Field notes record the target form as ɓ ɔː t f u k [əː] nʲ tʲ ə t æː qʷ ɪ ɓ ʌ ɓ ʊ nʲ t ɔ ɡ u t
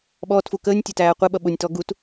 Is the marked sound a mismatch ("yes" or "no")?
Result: no